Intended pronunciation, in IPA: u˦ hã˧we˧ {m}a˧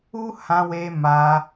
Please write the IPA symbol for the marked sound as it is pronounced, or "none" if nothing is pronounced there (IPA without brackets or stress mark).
m